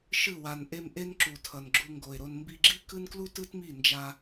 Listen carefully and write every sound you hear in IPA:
ʃ ɯ˦˨ w a˨ n ʔ e˧ m ʔ e˦ n ǁ u˨ tʰ ʌ˨ n ɡ͡ǁ u˧ ŋ ɡ o˨ ɪ̯ ɾ o˧ n m b i˧ ɡ͡ǁ i˦ k ɯ˦ n k l u˦ t ɯ˦ t m i˦˨ n d͡ʒ a˧

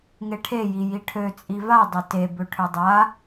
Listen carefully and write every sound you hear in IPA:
ŋ e ʈʰ e j i j i ʈʰ ø t͡sʼ i v a dˤ ø t e b ø ʈʰ ʏ dˤ a

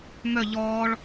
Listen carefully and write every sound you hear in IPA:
m œ ʎ ɔː ɭ

